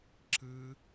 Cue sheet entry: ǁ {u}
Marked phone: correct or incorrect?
incorrect